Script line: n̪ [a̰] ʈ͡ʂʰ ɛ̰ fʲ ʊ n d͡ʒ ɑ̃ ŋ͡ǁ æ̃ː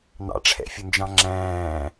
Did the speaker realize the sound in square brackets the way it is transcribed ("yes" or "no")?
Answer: no